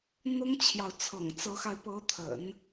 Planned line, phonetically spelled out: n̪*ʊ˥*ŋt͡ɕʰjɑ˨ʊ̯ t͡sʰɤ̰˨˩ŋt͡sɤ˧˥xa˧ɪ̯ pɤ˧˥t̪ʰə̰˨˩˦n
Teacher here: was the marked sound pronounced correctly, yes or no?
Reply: yes